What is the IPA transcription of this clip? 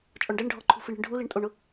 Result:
t͡ʃʼɔɳɖɛɳɖʱɔǃʰṳ fiɳi̤ɳɖʱu liɳtʼoɳʊ

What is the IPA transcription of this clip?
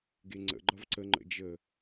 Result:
ɡeŋ͡ǀə̰ ɡ͡ǃʌvǀə ŋ͡ǃə̰d͡ʒə

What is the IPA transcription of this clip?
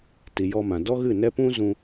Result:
ti˨jɔ˧mã˨ dɔ˦ ɣɨ˦˨nɛ˦pũ˦ zũ˧

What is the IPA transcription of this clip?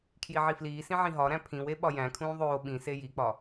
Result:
kʰjiʕifliːsĩ ʕĩɦɒɾæ̃ pʰĩwe ɓɒjæ̃kʰũː ðˤoː ɓĩse jik͡pɒ

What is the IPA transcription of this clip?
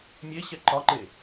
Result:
mʲe ɕɛǃɒǃe

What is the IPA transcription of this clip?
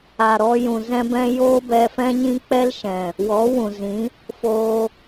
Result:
a˨ɾɔ˧jũ˨ zɛ̃˦bɛ̃˦ joː˦bɛ˧fɛ̃˦ɲĩ˦ k͡pɛ˦lʃɛ̃˨ | wɔ˨˦wũ˨zĩ˨˦ | foː˧

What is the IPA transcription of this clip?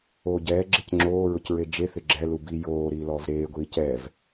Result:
oːɟɛːɡ͡ǁec ŋ͡ǁoː ɹʊcɹed͡ʒeθɪ ɡ͡ǁɛlu bi joː ɾiːlɔːvɾeːɡʷiː cɛv

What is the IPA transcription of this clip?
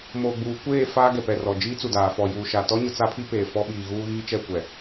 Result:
moː˨ɡ͡buː˨kʷeː˦˨ faː˦ɡɛ˨pɛ˨rɔ˨ d͡ʒiː˦t͡su˨daː˨ fɔ˨juː˨ʃa˨ tɔ˦ɲʊ˨ t͡sa˦pʰi˦peː˨ fɔ˦ɓiː˨ɣuː˦ ɣiː˦t͡ʃɛ˦˨ kʷɛ˨

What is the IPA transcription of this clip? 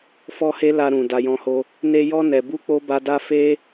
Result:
fɔ˦he˦la˧ ɾũ˨ da˧jɔ̃˧ho˦ | ne˧jɔ˧nɛ˨bu˧ k͡po˦ba˧da˦ fe˦

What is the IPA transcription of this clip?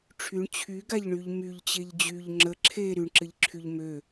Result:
ʈ͡ʂʰyɳ t͡ɕʰyɡaʎɳyʎ myʎt͡ɕeʎ d͡ʑyʎ ŋ͡ǁə ǁʰe ɾyɳǁɘʎǁʰyʎ mø

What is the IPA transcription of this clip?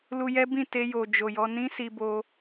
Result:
lu˧jɛ˦bĩ˦˨ te˧jo˨ d͡ʒo˨jɔ˧ nĩ˦si˧bo˧

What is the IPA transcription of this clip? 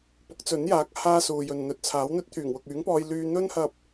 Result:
pʊ˨˥k̚t͡sɵ˨˥njaː˨˥k̚ haː˥suː˨jɵ˨n n̪ɵ˨t̚t͡sʰaː˨˥wn̪ɵ˥t̚ t̪ʰyː˨˩ŋwʊ˨k̚yː˨˥ŋpɔː˧j lyː˧n̪ɵ˥nhɐ˧p̚

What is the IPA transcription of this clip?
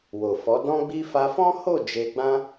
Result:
wo˨fɔ˨˦ dɔ̃˦ɡ͡bi˦ fa˧fɔ̃˦ho˦˨ d͡ʒe˧ ɡ͡bã˦

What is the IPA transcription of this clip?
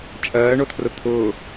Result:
t͡ʃʼɜːɳotʰrʊ t̪ʰʊː

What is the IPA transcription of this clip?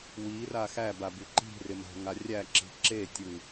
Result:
wira xæbaby ǃi̤rɪma̤ŋa rʲæǁi̤ ǁetʲɯ

